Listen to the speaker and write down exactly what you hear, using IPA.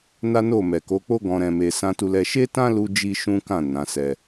n a˦ n o˦˨ m ɛ˨ k o˨˦ k͡p o˦ ɡ ɔ̃˧ ɾ ɛ̃˧ m e˧ s ã˦ t u˦ l ɛ˦ ʃ e˦ t ã˦ l u˦ d͡ʒ i˦ ʃ ũ˦ k ã˦˨ n ã˨˦ s ɛ˧

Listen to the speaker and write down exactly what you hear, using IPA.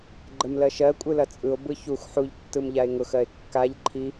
ɡ͡ǃ ə m l ɜ ʃ ɜ kʷʼ ɯ l ɐ t͡sʼ ɯ o̯ b ɯ ç u x ħ u ʎ tː ɯ m ʎ a e̯ ŋ ʊ x ɜ e̯ kː a ʎ ǃʰ i

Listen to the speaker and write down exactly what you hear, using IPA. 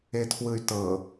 e tʰ w ɯ y̯ t ɤ

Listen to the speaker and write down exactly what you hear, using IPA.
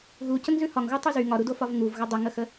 ɣ u c ə ŋ z ʉ h ɒ ŋ ɣ u tˤ u z y ŋ ɒ ɾ u d o f ɒ v ŋ u v ɣ ə dˤ ə ŋ ə x ə

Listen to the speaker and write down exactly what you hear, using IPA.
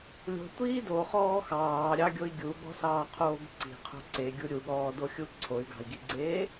lʲ o̤ tʷ iː d o χ ɔː x ɑː ɾʲ ɑ ɡʲ o i̯ ɡʲ u ɠ ɔ̤ s ɑː qʰ oː ɡ ǀ i̤ qʰ o̤ ǀ e ɡʲ u ɾʲ u ɠ ɔː d o xʲ u ǀʰ o y̯ ɡ ɑ̤ i̯ ɡ i ɡ͡ǀ eː

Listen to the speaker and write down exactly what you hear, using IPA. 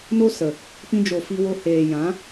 n o˦ s ə˨ | p ĩ˧ d͡ʒ o˨ f i˧ w o˧ h eː˨ j ã˨˦

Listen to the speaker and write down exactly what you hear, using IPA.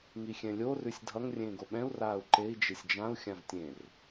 ŋ i xʲ ɛ̃ lʲ o r ʉ sʲ dʱ ʌ ŋ rʲ ẽː ɡ o ɓ ɛ̃ u̯ r aː u̯ ǃ e i̯ d͡ʒ e sʲ d͡ʒ ã u̯ xʲ ã v tʲ ẽ r

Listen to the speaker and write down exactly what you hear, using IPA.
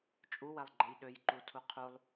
t͡ʃʼ u w ɛ lˠ ɡ͡ǃ ɛ j ɗ ø j ǃ u tʰ u qʰ u lˠ

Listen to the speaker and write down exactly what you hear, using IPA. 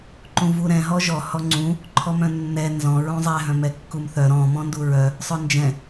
ǃ ũ v u ɾ ɛ̃ ɦ ɔ ʒ ɔ h ɔ ŋ͡ǀ ũ | ǃʰ ɔ m œ̃ nː ɛ n z ɔ̃ ɹ ũ zˤ ɛ ɦ œ̃ m ɛ kː u m θ œ ɾ ɔ̃ m ɔ̃ n d u ɹ œ | sˤ œ n d͡ʒ ɛ̃

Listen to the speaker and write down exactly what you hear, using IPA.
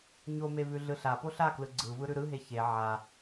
ɲ o m e v ʉ ɮ ɯ ɬ a p o ɬ a k l ɯ ɡ͡ǀ ɯ v ɯ ɾ ʉ ɾ ɯ ɦ e ç e ʕ a

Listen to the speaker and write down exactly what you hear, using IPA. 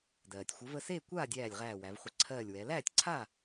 d ɜː˩ tʲ xʷ ə˨˥ v ə˥˨ s eː˥˨ kʷ aː˥˨ dʲ æː˧˩ lʲ ʁ æː˧˩ w æ˩˧ v χʷ ə˧˩ ǀʰ ɜː˧˩ lʲ w ɛ˩˧ l æː˥˨ tʲ ǀʰ a˥˨

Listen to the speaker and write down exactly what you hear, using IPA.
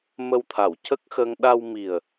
m ə˧ w t̪ʰ a˨˩˨ w c ə˦˥ k̚ x ə˧ ŋ ɗ a˧ w m i˨˩ ə̯

